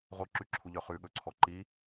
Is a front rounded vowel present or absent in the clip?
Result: present